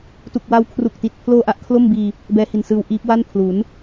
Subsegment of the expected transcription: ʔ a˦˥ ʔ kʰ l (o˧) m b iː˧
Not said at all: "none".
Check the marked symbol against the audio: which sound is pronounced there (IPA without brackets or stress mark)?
o˥˩